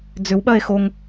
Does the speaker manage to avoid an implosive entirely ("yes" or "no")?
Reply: no